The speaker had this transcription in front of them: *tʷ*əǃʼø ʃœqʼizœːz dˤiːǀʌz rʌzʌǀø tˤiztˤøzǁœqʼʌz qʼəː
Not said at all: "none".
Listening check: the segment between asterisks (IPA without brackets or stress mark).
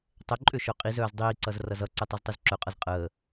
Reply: tˤ